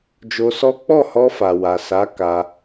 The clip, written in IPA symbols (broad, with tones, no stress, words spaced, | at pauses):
d͡ʒo˧sɔ˦ k͡pɔ˦˨hɔ˧fa˨ wa˨sa˨˦ ka˧